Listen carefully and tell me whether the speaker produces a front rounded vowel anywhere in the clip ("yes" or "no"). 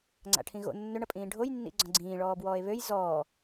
yes